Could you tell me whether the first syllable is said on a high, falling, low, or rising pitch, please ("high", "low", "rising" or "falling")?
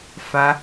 high